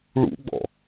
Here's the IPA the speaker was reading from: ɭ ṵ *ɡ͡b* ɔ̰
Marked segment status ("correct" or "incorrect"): correct